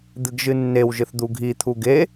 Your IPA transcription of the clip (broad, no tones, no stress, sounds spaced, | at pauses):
d̪ ɨ ɡ ʒ ɨ nː e w ʒ ɨ θ d̪ u ɡʱ i t̪ʰ u ɡ e